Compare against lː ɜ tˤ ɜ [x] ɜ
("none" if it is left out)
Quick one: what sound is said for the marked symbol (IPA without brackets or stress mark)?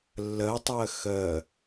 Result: x